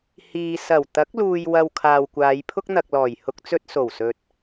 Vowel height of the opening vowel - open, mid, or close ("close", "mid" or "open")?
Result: close